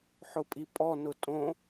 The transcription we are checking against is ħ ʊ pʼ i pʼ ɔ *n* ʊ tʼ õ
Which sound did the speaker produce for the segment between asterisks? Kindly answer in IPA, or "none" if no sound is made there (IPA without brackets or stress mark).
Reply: n